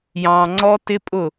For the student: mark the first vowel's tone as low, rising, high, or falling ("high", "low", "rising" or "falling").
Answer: low